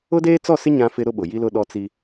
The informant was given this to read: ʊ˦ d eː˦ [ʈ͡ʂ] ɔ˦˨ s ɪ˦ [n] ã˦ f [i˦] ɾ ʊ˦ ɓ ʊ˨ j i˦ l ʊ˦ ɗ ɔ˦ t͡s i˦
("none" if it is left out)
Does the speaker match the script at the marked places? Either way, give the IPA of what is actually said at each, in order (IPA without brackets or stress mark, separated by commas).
t͡s, ɲ, ɪ˦